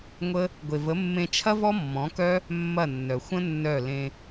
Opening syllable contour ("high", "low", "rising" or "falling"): high